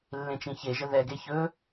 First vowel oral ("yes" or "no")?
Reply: no